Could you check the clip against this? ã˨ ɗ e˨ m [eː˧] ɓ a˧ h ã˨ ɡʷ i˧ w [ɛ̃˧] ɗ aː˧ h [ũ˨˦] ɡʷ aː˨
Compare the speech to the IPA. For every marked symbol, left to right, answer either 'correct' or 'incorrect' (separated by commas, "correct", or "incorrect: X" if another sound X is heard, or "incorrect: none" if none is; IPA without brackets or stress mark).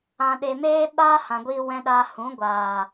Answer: correct, correct, correct